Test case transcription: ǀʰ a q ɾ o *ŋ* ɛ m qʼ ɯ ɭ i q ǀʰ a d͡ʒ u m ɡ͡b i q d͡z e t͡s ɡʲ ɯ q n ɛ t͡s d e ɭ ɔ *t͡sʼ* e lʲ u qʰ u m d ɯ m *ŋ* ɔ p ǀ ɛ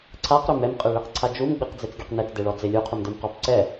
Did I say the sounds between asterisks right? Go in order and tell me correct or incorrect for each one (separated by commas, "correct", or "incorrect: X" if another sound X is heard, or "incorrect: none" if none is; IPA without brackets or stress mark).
incorrect: m, incorrect: d͡z, incorrect: q